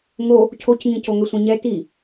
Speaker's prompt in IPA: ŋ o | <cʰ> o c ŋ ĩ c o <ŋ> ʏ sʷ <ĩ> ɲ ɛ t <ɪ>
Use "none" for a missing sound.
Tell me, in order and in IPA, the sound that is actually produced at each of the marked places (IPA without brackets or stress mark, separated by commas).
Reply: cʰ, ŋ, ĩ, i